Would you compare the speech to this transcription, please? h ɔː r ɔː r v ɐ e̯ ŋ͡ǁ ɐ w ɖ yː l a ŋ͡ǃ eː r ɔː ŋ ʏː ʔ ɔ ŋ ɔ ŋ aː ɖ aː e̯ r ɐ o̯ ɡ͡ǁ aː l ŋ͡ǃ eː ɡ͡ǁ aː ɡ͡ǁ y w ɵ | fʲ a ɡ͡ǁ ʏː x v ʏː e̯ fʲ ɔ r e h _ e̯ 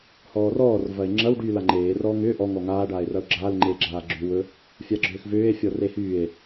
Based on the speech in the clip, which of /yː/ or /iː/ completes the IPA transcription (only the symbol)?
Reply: yː